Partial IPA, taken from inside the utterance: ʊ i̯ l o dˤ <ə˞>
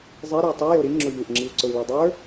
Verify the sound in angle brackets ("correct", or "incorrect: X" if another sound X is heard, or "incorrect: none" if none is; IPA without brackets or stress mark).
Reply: correct